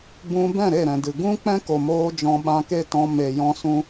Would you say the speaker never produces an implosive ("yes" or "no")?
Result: no